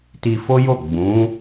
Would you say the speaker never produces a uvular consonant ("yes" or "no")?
yes